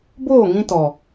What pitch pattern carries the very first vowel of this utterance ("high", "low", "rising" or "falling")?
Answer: falling